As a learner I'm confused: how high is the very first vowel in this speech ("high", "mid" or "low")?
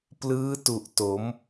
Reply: high